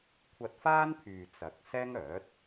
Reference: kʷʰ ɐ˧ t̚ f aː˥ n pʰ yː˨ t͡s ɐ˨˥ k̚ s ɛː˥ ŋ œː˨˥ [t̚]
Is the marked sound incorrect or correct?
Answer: correct